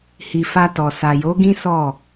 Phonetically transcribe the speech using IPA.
h i˨ f a˧ t ɔ˨ s a˨ j o˨˦ ɡ ĩ˦ s ɔ˦˨

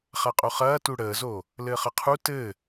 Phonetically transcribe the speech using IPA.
χ a qʼ o χ ɐː t u ɽ əː z o | l ɘː χ ɐ qʰ u t ɘ

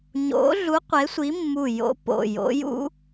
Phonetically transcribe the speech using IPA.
ɲ o̰˨˥ ɮ u˨˥ qʷ e˨˥ sʷ i˨˥ mː u˧˩ j o̰˨˥ p o̰˩˧˩ j o̰˨˥ j ṵ˨˥

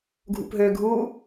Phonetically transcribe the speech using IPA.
ɡʱ ṵ p ɦ ø ɡʱ u

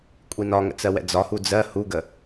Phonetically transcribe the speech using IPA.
kʷʼ i n ɒ ŋ ə̰ t͡s ɜ w ɛ̰ d͡z ɒ h u d͡z ɜ h u ɡ ə

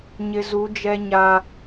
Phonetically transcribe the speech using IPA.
ɲ ɪ˨ z u˨˦ d͡ʒ ɛ˦ ɲ a˦

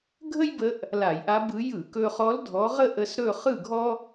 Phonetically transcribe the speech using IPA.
ɡʱ ə˥ j b ə˧˥ ʔ | l a˧˩˧ j ʔ a˧˥ b ɯ˧˥ j ɯ˧˩˧ k ɵ˧ χ ɔ˧˥ l dʱ ɔ˧˥ ʁ ə˥ ʔ ə˧˥ s ɾ ɵ˥˧ χ ɯ˥˧ ɡʱ ɔ˥

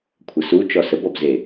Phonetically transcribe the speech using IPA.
kʷʰ ɐ s u t͡ʃ ɔ s ə b ɔ b z e

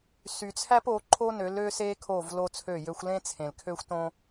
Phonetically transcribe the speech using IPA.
s y˨ t͡sʰ æ˦ p o˨˦ ǃʰ o˦ n ø˨˦ l ø˦ s e˦ kʰ o˦˨ v l o˦ t͡sʰ ø˦˨ j ø˦ xʷ l ẽ˦ t͡sʰ ẽ˨ l kʰ ø˦ xʷ t õ˦

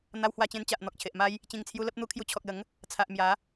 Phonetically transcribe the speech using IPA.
n̪ a˧ w h w a˧ t͡ɕ ẽ˧ n t͡ɕ a˨ ʔ n̪ ɔ˨ k̚ t͡ɕʰ e˨ ʔ m a˦ j | t͡ɕ ĩ˨˩ ŋ t͡sʰ j u˧ l ə˦ p̚ n̪ u˧ kʰ j u˧ t͡ɕʰ ɔ˨ k̚ l ə˨˦ ŋ | t͡sʰ a˨ ʔ m j a˨˦

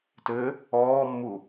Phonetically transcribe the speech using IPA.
t ɘ | ɔː mː u

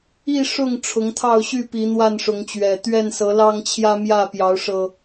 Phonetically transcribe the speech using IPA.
i˥˨ ʂ ʊ˥˨ ŋ ʈ͡ʂʰ ʊ˨˦ ŋ t̪ʰ ɑ˥˨ ʊ̯ ɕ y˥˨ p i˨˦ n̪ w a˥˨ n ʂ ʊ˨˦ ŋ t͡ɕ ɥ ɛ˨˩ t̪ ɥ ɛ˥˨ n s ɤ˨˦ l ɑ˦ ŋ t͡ɕʰ j ä˦ m j ä˥˨ p j ɑ˨˦ ʊ̯ ʂ ɤ˨˩

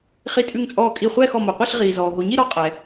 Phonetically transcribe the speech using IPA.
χ i˥˧ tʼ ʉ˥˧ ŋ t͡sʼ ɔː˥˧ kʼ i˥˧ χʷ ɛː˥˧ x ɔ˨ m o˨ qʷ i˥˧ ɬ ʁ iː˨ z ɔː˨ ɦ o˨ ɲ i˥˧ ɾ ɔ˥˧ qʼ ɛ˨

